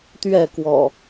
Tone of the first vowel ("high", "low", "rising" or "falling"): falling